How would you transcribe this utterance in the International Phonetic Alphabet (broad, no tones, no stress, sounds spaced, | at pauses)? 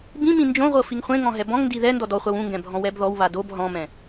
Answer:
b ĩ m ĩ n d͡ʒ õ ʁʷ ɤ f i ŋ χʷ ẽ ŋ ɔ̃ ɦ ɛ b ɔ̃ ŋ n d i ð ɛ n d ɔ d ɔ χʷ a w ũ ŋ ɡ ɛ̃ bʱ ɔ̃ w ɛ b ð ɔ w β a d o b ɦ ɔ̃ m ɛ̃